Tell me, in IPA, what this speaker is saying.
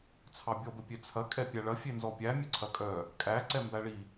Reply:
t͡sʰ ɑ bʲ ɔ b ə pʲ e t͡sʰ ɐ kʼ ɛ pʲ æ ɭ ɐ fʲ e n z ɔ pʲ æ mʲ ə ǀʰ ɐ kʼ œ | kʼ æ ǀ ɛ m b æ ɭ i

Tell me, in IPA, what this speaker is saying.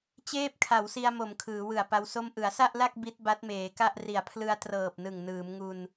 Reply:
t͡ɕ eː˥˩ p̚ kʰ a˩˦ w s i˧ a̯ m o˩˦ m kʰ ɯː˩˦ w ɯ˨˩ a̯ p a˦˥ w s o˥˩ m ʔ ɯ˩˦ a̯ s a˥˩ ʔ l a˥˩ k̚ b i˦˥ t̚ b a˦˥ t̚ m eː˩˦ k a˥˩ ʔ r i˨˩ a̯ pʰ l ɯ˧ a̯ t r ɤː˨˩ p̚ n ɯ˨˩ ŋ n ɯː˩˦ m ŋ u˧ n

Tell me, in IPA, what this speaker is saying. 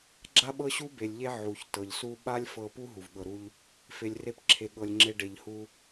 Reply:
ɡ͡ǁ a˦ ɓ ɤ˦ ɕ u˦ b e˨ lʲ ʎ e˦ ʕ u˨ ç t ɤ˨ ʎ s u˦ ɓ a˦ lʲ f ɤ˧ p u˦ ɦ u˨ v ɠ ɤ˧ ɾ u˦ ʎ | f e˨ lʲ r e˧ p ǁʰ e˧ ɠ ɤ˧ lʲ ŋ͡ǁ e˦ ɖ e˧ ʎ h u˦

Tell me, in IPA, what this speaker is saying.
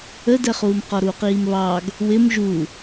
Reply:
ə d ɛ χ uː m q ɔ ɾ uː q iː m β ɑ ɡ | w ɪ m ʒ u

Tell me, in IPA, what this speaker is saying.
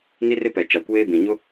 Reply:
n i˦ r ɪ˦ p ɛ˨ t͡ʃ a˨ kʷ eː˦ b ĩ˨ ɲ ʊ˦

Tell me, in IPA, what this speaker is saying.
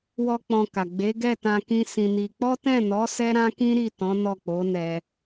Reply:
w ɔ˧ k͡p ɔ̃˧ k a˨ ɡ͡b e˨˦ ɡ ɛ˦˨ t ã˧ k ĩ˦ s ĩ˧ n i˧ k͡p ɔ˦ t ɛ̃˦˨ n ɔ˨˦ s ɛ˦ ɾ ã˦ k ĩ˦ ɾ i˦˨ t ɔ̃˨˦ n ɔ˦˨ k͡p o˨˦ n ɛ˧

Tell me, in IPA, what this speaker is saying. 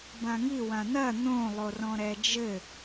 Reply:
b ã ŋ i w ã n̪ ɐ n̪ õ lˠ o r ɔ̃ ɾ ɛ d͡ʒ ɘ

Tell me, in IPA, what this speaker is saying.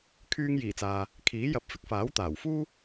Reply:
kʰ yː˧ ŋ j iː˨˩ t͡s aː˨ | kʰ iː˨˥ j ɐ˧ p̚ f ɪ˥ k̚ f aː˨˥ w t̪ aː˨˩ w f uː˥

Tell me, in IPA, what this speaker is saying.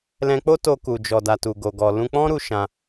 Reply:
l ɛ̃˧ k͡p o˦ t o˧ k u˨ d͡ʒ ɔ˨ d a˨ t u˨ ɡ o˨ ɡ ɔ˨ l ũ˧ k͡p ɔ̃˦ ɾ u˧ ʃ ã˧

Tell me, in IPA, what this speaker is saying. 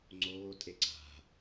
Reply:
ŋ͡ǀ oː tʼ e ǀ a̤

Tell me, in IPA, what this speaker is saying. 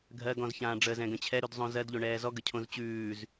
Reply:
ɡʱ ɜ ɡ ɔ̃ z ç ãː ɖ͡ʐ ə z ɛ̃ ɡ ə̃ t͡ɕʰ ɛ ɾ ʉ d zˤ õ z ɜ d ʎ o ɳ ɛː z ɔ ɡ ə cʰ õ z t͡ɕ ʉː z

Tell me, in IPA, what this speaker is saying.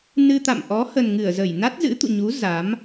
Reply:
n ɨ˧ t̪ a̰˧˨ m ʔ ɔ˨˦ h ə˨˩ n ŋ ɨ˧˩ ə̯ z ə˧˩ j n a˦˥ t̚ z ɨ̰˧˥ t̪ ṵ˧˨ ɲ u˨˦ z a˨˦ m

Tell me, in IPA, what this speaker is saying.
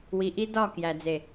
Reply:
w i˨ ʔ i˦ d ɒ˦˨ k j æ˨ d͡z e˨

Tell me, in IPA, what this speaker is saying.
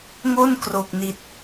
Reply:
ŋ o˥˩ n k r o˨˩ k̚ n i˨˩ t̚

